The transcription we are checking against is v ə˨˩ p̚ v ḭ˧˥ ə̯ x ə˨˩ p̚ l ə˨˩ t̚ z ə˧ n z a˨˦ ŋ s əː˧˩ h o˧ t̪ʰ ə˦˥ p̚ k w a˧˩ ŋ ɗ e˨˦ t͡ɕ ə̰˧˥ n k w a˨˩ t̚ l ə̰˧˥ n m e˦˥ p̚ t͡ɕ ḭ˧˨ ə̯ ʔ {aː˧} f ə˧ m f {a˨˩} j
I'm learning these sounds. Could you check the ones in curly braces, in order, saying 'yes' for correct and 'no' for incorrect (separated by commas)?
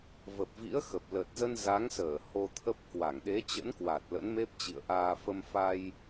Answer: yes, no